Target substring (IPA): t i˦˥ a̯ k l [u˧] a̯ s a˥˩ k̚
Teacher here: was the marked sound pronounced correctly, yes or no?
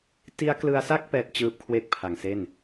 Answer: no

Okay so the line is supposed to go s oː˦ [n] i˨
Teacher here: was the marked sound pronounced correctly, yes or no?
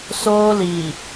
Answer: no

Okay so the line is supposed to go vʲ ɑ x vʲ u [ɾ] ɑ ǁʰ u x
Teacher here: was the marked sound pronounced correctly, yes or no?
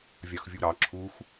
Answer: yes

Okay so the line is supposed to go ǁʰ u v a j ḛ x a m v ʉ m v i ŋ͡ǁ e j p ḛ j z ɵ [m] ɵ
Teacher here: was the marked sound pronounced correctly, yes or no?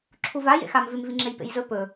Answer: no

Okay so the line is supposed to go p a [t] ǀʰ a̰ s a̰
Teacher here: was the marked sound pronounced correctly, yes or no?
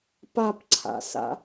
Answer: no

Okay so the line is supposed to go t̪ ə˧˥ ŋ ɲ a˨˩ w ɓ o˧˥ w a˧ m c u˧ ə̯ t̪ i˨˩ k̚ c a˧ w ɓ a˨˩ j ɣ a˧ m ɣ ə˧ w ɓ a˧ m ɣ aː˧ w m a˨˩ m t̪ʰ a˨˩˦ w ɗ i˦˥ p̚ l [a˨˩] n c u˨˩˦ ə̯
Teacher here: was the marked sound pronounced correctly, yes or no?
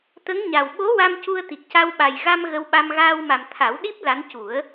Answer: no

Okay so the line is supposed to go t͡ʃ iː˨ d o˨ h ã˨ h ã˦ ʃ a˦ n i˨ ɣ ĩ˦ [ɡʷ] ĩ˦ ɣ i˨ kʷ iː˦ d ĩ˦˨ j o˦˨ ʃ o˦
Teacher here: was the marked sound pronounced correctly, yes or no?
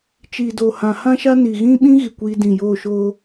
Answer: no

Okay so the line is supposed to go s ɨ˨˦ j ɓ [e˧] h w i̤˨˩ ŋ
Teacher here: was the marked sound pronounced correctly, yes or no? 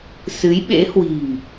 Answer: no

